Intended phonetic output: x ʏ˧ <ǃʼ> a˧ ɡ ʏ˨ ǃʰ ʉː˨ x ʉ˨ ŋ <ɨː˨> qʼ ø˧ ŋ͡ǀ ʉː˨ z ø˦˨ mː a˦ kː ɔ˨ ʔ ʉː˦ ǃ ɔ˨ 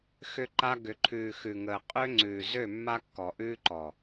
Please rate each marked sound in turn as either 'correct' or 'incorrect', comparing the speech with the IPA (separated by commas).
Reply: incorrect, incorrect